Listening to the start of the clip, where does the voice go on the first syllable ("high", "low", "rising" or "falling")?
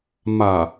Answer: low